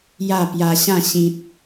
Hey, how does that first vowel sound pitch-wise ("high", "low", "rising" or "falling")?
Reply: falling